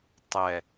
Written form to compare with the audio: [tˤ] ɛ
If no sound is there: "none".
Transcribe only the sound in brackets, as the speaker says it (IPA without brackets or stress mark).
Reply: tˤ